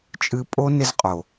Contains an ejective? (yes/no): yes